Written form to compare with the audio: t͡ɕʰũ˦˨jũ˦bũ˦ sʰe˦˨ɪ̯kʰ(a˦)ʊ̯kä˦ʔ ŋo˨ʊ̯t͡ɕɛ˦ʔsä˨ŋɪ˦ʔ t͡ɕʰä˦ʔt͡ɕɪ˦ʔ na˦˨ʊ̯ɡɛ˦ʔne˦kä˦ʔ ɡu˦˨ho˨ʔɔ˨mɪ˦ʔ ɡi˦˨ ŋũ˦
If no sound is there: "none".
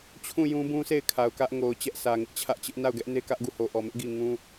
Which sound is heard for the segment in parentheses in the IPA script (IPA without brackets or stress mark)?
a˨